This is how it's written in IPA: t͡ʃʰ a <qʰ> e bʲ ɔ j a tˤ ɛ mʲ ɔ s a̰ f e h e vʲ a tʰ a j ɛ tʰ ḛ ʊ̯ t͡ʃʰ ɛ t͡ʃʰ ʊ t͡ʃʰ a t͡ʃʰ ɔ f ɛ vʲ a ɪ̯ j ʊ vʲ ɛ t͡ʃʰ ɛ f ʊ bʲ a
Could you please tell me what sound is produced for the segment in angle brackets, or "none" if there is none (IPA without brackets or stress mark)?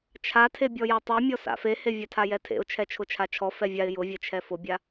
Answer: tʰ